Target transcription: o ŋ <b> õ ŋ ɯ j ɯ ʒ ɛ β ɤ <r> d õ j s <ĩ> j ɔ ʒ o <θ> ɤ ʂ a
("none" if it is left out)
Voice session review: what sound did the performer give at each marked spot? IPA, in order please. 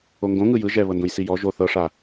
ɡ, n, i, θ

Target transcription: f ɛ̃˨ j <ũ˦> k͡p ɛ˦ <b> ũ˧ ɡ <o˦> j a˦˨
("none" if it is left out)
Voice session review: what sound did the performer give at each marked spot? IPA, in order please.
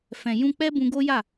ũ˧, b, o˦

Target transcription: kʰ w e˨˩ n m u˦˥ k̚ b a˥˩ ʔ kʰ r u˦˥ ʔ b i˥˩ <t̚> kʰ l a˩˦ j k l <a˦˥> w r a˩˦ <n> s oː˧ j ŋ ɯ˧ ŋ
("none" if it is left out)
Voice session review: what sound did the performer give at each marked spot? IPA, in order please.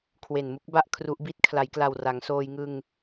t̚, a˨˩, ŋ

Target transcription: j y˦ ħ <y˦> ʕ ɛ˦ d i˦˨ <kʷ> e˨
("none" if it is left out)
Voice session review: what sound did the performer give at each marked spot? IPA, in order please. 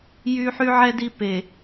y˦, p

